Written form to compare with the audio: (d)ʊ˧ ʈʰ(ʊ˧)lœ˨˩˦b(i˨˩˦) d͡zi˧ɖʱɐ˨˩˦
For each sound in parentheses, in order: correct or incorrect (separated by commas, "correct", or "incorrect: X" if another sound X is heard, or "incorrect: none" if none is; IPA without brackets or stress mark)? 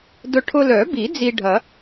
correct, correct, correct